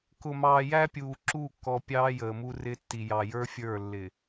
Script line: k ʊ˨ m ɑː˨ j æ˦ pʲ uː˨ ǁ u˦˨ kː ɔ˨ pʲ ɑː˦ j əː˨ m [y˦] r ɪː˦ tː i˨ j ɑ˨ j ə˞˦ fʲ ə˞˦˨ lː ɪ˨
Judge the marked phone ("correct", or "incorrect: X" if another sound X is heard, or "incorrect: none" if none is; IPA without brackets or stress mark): incorrect: u˦